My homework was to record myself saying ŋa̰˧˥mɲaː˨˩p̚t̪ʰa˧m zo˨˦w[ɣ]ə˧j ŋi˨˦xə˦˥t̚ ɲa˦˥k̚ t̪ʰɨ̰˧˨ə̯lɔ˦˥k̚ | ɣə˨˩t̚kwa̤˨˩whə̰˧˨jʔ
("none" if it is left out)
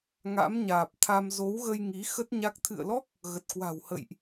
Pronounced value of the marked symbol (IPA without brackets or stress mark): ɣ